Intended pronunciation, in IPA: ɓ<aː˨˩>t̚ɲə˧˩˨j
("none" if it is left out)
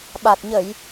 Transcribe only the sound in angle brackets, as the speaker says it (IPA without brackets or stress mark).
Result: a˨˩